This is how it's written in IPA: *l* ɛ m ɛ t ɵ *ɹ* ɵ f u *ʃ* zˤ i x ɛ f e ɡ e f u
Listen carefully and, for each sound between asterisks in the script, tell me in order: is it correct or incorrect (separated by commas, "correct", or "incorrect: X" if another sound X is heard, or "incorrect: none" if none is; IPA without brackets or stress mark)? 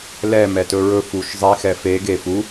correct, correct, correct